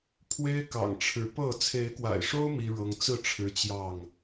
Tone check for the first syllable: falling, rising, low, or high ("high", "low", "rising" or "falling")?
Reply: high